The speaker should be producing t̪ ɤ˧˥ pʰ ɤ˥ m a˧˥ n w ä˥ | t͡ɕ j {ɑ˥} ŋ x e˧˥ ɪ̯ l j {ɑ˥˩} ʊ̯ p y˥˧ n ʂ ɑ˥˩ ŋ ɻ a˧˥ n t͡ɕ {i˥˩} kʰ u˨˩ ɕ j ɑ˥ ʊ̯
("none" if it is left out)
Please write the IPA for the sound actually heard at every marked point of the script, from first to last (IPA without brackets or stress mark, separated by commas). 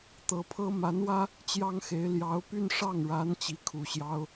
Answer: ɑ˥, ɑ˧˥, i˧˥